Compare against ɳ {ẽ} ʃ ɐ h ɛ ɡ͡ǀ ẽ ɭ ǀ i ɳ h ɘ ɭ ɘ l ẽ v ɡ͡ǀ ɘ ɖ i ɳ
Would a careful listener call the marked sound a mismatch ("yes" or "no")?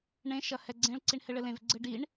no